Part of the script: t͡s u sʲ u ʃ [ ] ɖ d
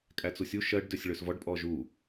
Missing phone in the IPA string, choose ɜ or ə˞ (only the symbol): ɜ